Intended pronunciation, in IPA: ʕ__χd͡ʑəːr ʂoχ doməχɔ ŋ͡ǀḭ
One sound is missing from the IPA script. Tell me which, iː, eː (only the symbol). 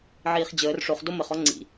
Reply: iː